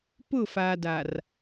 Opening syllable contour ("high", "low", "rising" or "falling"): falling